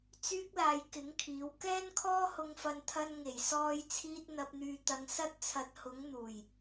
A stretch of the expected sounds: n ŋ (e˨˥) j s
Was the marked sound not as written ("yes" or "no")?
yes